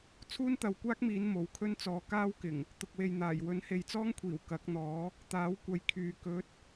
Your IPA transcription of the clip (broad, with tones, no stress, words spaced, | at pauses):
t͡sʰuː˥nt̪ɐ˨˧wkʷaː˥k̚miː˨˧n mo˨˥wkʰɵ˥nt͡sɔː˨˧ kaː˥wkɪ˨˩ŋ | t̪ʊ˨k̚we˨jn̪aː˨˩j wɵ˨˥nhe˨˧jt͡sɔː˥ŋkʷʰiː˨˩w kɐ˨˥k̚n̪ɔː˨˥ | t̪aː˨˥wkʷɐ˨jkʰyː˨ kɵ˨˥t̚